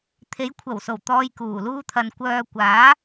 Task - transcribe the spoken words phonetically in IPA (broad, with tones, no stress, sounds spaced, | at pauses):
t̪ʰ e˨˧ j kʷʰ ɐ˨˩ w s o˨˩ w t̪ ɔː˧ j k uː˨˩ l uː˥ t̪ʰ ɐ˧ n kʷ œː˧ kʷ aː˨˥